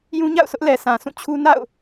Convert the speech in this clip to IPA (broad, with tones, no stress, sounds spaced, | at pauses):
j ũ˦ ɲ a̰˦˨ ʊ̯ sʰ ʊ˦ ʔ l ɛ˨ s ã˨ s ũ˦˨ t͡ɕʰ u˦ n a̰˦˨ ʊ̯